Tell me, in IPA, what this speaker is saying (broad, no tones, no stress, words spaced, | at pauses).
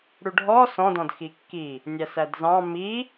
ɽuɖʱɔ sɔ̃dɔ̃d xikːi | nʲæsædzɑ̃ mi